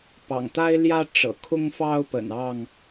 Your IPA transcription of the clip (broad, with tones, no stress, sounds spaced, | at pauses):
p ɑ̰˨˩ ŋ t̪ a˦ ɪ̯ l j ä˦ ʈ͡ʂ ɤ̰˨˩ kʰ ʊ˦ ŋ f ɑ˦ ʊ̯ p ə̰˨˩ n ɑ˥˨ ŋ